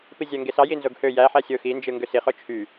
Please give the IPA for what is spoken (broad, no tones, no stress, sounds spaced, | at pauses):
p i zʲ æ ŋ ɡ e s ɑ j i n z o ɡ h ø j æ ħ æ sʲ o x i n d͡ʒ ɯ ŋ ɡ ø s i χ o t͡ʃʰ y